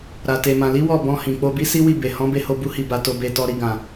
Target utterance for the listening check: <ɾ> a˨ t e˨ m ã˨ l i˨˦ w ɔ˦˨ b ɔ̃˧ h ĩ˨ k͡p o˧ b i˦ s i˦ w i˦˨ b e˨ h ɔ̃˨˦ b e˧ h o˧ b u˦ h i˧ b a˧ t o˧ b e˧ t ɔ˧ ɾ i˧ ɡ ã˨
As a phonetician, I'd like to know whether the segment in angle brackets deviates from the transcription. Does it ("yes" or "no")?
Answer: no